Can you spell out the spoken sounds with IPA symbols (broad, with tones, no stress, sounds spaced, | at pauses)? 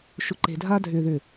ʃ ʊ˨ ǃ e̤˨ dʱ a˧ dʱ ʏː˨ ð ʏ˨